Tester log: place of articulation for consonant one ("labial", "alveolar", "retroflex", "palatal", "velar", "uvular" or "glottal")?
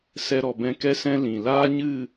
alveolar